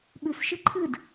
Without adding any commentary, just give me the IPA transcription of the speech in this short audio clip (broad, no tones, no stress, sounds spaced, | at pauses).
ɓ ʉ s ʃ ɨ ǃʰ ɨ d